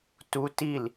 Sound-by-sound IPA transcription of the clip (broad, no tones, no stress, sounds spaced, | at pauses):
t u t i l